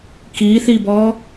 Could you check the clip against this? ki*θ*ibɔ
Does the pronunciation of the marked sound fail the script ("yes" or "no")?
no